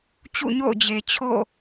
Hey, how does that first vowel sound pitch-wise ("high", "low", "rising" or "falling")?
falling